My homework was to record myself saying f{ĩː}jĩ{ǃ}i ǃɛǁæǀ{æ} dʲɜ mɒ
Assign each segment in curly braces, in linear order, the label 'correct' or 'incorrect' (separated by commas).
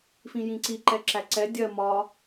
incorrect, incorrect, incorrect